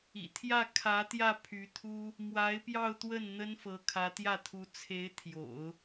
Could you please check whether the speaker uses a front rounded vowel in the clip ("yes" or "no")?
yes